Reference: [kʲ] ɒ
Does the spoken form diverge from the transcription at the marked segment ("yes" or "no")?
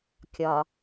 no